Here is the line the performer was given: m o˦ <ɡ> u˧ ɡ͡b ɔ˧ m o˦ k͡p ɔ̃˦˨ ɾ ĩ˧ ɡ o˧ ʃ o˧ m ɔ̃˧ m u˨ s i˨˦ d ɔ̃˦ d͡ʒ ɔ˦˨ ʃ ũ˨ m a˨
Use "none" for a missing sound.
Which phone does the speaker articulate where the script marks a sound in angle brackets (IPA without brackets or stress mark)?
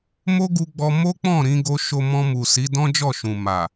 ɡ